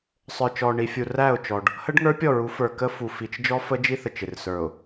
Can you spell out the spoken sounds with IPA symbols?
sˤə˞˨t͡ʃɔ˨ɳi˨fʲu˨ ræ˦˨ʊ̯t͡ʃɔ˨ɖ | hə˦ɖŋə˞˦ pʲɔ˦˨ɹu˨˦ fə˞˨ kə˦fu˨ fi˨t͡ʃ d͡ʒɔ˦fə˦d͡ʒi˦θə˨t͡ʃ ɪ˨rsə˞˨ʊ̯

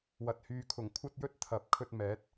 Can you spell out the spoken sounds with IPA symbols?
wɐ˨˥t̚hyː˨kʰʊ˨˩ŋ kʷʰɐ˧t̚jɵ˧t̚ t̪ʰɐ˨˥p̚ kʰɵ˧t̚mɛː˨˥t̚

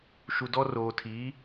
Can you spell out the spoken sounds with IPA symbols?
ʃu˨dɔ˦ roː˨tʰiː˨˦

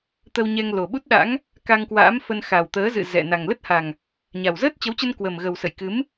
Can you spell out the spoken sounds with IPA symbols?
t̪ə˧wɲɛ˧ŋ lo˨˩ɓu˦˥t̚ɗa̰˧˥ŋ | ka˧ŋkwa̰ː˧˥mfə˧n xa˨˩wt̪əː˨˦ zɨ̰˧˨ zɛ̰˧˨ na˨˩ŋlə˦˥t̚ha˨˩ŋ | ɲa˨˩wzəː˦˥t̚t͡ɕə˨˦wt͡ɕə˧n kwə˨˩mɣə˨˩wsə̰˧˨j kɨ˨˦m

